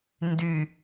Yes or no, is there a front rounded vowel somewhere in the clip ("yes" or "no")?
yes